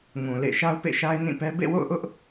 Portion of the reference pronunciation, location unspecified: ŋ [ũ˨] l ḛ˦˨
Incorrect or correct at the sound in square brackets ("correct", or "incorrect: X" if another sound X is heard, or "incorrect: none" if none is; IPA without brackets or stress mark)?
correct